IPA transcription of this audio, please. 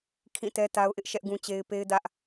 kʰĩ˦˨tɛ˦ta˦ʊ̯ʔɪ˦ʔ ʃɛ˦ʔɡũ˦t͡ɕe˦ɪ̯ pe˦ɪ̯dä˦ʔ

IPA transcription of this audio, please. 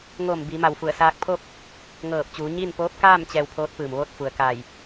ŋoː˧˩mbi˩˧ma˩w fu˧˩ə̯saː˧k̚pʰo˥˨k̚ | ŋɤː˧˩p̚t͡ɕuː˩˧ɲiː˥˨n poː˧˥p̚kaː˥˨m t͡ɕɛː˧wpʰoː˧˥t̚pɯː˩m ʋoː˥˨t̚fu˩ə̯ka˧˩j

